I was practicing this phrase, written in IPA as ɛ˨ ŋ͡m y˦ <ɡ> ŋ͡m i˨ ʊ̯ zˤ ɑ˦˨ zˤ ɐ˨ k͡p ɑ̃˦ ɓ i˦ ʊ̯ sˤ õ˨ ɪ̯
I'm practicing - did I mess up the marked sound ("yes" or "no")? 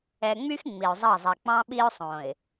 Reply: yes